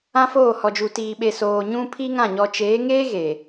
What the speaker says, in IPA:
ã˦ f oː˦˨ h ɔ˨ d͡ʒ u˨ t iː˨ ɓ e˨ s oː˨ ɲ ũ˦ pʰ i˦ ŋ ã˦˨ ɲ ɔ˨ t͡ʃ eː˨˦ ŋ eː˦ ɣ e˨

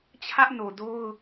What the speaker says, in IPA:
t͡ɕʰ ä˦ ʔ n o˨ d o˦ ʊ̯

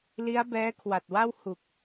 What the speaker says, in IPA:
l i˦˥ a̯ b ɛː˦˥ kʰ w a˨˩ t̚ w a˥˩ w h u˨˩ k̚

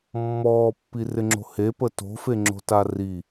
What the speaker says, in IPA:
mː ɔː pː i r ɪ ŋ͡ǁ o̤ h e p ə t o̤ f e ŋ͡ǁ o̤ t a r i

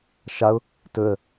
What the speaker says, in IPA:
ʃ a ʊ̯ | t ɵ ə̯

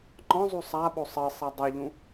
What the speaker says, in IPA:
ŋ͡ǃ ɔ̃ zˤ u sˤ a ɓ o sˤ ɘ sˤ ɛ dˤ o ʎ ũ

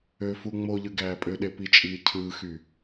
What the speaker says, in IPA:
ø f u ŋ͡m o ʎ ɯ ɡ æː pʼ ø ɗ e p i t͡ʃʼ iː cʰ ɯː x y

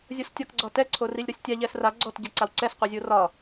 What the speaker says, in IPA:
zʲ o s tʲ ɒ k ɡ͡ǀ ɒ t ɛ ǀʰ o r i lʲ ɾ o sʲ tʲ a ʎ ɛ s r a ɡ͡ǀ ɔ t ɟ ɛ ǀ a w ǀ ɛ s qʷ i zʲ o r ɒ

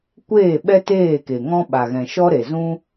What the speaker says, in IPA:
kʷ eː˦˨ ɓ ɛ˦ t eː˦˨ k e˨ ŋ ɔ̃˦ ɓ a˨ ɣ ɛ̃˨ ʃ ɔ˦ ɾ e˨ z ũ˦

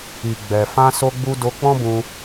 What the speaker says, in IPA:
i˨ ɡ͡b ɛ˨ f ã˧ s o˧ ɡ͡b u˧ d o˧ k͡p ɔ̃˦ b ũ˧

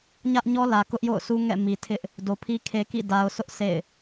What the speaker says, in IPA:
ɲ ä˦ ʔ ɲ ɔ˦ l ä˨ k ʊ˦ ʔ j o̰˦˨ ʊ̯ sʰ u˦ ŋ ɛ̰˦˨ m i˨ tʰ ɪ˦ ʔ | d o˨ pʰ i˦ kʰ e˦ k ḭ˦˨ d a˨ ʊ̯ sʰ ʊ˦ ʔ sʰ ḛ˦˨ ɪ̯

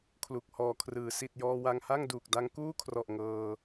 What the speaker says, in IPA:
kʰ l u˨˩ k̚ h ɔː˨˩ kʰ r ɯː˩˦ s i˨˩ t̚ j ɔː˧ w a˧ ŋ h a˥˩ ŋ d uː˨˩ k̚ d a˧ ŋ k uː˥˩ kʰ r ɔ˨˩ ʔ ŋ ɤː˧

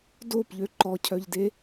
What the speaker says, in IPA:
d o p ʎ ø ǃ ɔ cʰ œ ʎ d e

